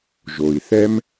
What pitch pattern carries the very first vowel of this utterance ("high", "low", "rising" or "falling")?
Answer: low